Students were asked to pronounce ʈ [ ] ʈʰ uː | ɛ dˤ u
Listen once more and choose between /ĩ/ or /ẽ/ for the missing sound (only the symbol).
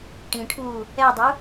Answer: ĩ